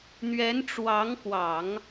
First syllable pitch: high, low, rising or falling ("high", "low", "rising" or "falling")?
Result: rising